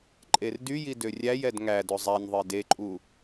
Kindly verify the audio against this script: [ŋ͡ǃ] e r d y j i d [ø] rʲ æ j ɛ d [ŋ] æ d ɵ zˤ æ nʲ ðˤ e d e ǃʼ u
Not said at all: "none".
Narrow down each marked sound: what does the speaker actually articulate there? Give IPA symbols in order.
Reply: ǃʼ, ø, ŋ

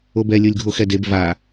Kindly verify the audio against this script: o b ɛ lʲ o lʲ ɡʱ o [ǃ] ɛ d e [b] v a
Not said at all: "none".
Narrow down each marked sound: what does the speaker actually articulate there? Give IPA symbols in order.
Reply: x, b

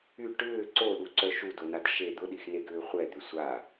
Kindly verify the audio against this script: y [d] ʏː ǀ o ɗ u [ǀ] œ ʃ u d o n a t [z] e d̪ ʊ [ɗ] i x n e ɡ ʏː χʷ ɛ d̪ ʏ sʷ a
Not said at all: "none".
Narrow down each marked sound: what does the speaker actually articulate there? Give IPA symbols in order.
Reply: ʈ, ǀ, ʃ, ɗ

